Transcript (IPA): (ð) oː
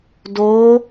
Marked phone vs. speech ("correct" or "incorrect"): incorrect